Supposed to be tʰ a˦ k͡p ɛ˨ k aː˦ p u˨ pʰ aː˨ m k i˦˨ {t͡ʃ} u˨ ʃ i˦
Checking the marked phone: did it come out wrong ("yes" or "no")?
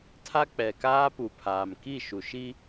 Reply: yes